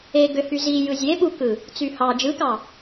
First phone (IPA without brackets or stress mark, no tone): e